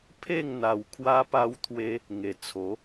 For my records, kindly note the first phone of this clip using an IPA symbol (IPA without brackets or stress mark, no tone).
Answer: pʰ